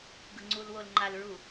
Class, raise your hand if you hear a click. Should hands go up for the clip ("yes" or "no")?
yes